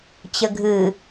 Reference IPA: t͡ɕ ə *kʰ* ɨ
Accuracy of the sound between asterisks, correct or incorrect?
incorrect